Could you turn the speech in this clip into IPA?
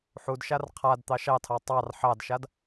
ħ u d ʃ a r qʰ a d t̪ ɑ ʃ ɑ tʰ ɑ tˤ ɑ r ħ ɑ d ʃ a d

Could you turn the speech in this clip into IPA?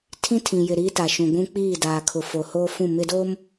tʰ ĩ˦ tʰ ĩ˨ j ɪ˨ ɾ iː˦ t a˨ ʃ ũ˨ ɡʷ ũ˦ k͡p iː˦˨ d aː˨ kʰ ʊ˨ f o˨ h oː˦ f ũ˦˨ m ɪ˦ d o˦ m

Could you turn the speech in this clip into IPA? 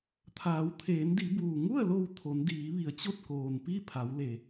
t̪ʰ aː˩˧ w t̪ʰ eː˩˧ n d i˩˧ b uː˩ ŋ u˥˨ ə̯ l o˧˩ w t̪ʰ o˩˧ n d iː˩˧ ʋ i˩˧ ə̯ t͡ɕ o˥˨ t̚ k oː˩ n p i˥˨ pʰ a˩˧ w l e˩

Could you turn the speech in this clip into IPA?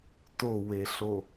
t o w e ɬ o

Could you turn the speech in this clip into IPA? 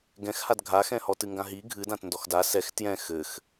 ɡ ɛ̃ x h a d ɡʱ a x ɛ̃ h ɔ t ɨ ŋ ɡ ã ɦ i ɡʱ ɨ d ã t n d ɔ x d a s ɛ x t j ɛ̃ x ɘ x

